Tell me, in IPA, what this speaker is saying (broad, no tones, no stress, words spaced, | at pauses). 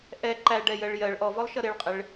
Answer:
ʔɛ ǃæɖɛ jɜɭjɜɭ ʔɔvɔlˠʃʌ ɾɪɭqʼɪɭ